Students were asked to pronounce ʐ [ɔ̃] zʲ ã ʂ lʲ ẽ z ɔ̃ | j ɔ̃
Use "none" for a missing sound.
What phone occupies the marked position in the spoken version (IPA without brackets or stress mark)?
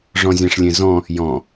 ɔ̃